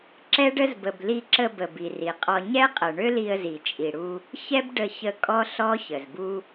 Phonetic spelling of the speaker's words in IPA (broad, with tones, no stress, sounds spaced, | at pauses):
ǁ ɛ˦ ɖ ə˦ z b ə˨ b l i˧ ǁ ə˧ b ə˨ b i˨ r i˨ qʼ ɔ˧ ɲ ɛ˦ qʼ ə˨ ɳ ø˦ l i˧ ə̯ z i˨ t͡ʃʼ i˨ ɽ u˧ | ç ɛ˦ b ɖ ə˧ ç ə˧ kʼ ɔ˦ ɬ ɔ˦ ç ə˨ z b u˦